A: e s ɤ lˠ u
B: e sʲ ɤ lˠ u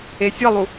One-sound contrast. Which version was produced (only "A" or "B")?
B